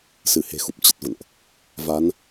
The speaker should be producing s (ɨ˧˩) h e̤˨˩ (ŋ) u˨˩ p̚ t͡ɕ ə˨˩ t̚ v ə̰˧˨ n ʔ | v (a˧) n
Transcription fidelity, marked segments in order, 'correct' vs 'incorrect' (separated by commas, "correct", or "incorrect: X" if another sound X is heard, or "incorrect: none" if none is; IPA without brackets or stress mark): correct, incorrect: x, incorrect: a˨˦